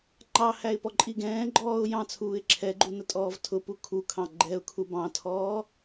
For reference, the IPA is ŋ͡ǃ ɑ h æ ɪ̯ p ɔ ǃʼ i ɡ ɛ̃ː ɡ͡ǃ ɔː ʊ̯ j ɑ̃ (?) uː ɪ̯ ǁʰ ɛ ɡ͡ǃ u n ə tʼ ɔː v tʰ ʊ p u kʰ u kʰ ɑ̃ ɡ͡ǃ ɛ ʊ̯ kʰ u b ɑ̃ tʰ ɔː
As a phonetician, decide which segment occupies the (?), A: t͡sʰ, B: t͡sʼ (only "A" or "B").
A